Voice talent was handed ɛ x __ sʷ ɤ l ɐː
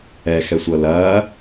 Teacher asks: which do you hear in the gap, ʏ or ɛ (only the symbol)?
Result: ɛ